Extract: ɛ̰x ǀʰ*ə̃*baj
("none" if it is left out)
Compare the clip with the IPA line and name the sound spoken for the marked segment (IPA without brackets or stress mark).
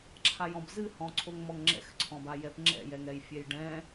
ɔ̃